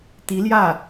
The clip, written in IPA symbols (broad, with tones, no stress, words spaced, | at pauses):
t̪i˧˥ljä˥˩